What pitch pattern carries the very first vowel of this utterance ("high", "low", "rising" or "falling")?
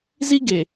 high